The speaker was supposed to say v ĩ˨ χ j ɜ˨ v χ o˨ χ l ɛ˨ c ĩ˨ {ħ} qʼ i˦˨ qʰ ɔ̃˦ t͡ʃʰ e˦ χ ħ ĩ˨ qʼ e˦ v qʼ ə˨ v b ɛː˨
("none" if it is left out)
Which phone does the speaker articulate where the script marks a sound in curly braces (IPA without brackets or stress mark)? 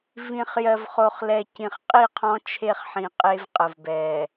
χ